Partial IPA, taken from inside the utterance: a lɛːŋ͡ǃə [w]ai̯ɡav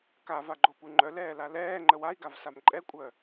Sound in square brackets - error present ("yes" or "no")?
no